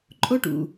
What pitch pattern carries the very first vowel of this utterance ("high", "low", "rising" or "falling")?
high